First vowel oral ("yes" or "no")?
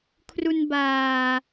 yes